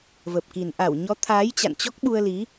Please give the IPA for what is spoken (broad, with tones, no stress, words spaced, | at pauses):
və˨˩p̚ki˨˩n ʔa˧˩wɲɔ˨˦t̪ʰaː˨˦j t͡ɕa̰˧˨nt͡ɕɔ˦˥k̚ɓu˧ə̯ li˨˦